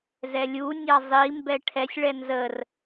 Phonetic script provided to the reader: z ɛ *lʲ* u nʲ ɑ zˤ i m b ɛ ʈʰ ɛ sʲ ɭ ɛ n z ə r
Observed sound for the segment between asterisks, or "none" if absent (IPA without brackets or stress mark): lʲ